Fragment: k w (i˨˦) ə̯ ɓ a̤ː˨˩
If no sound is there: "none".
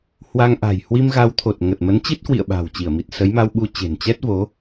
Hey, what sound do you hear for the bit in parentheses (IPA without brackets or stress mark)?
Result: ḭ˧˨